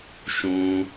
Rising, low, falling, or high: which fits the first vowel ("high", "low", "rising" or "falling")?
high